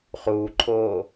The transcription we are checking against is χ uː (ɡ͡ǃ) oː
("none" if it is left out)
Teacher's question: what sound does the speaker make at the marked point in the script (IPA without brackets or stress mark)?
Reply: ǃʰ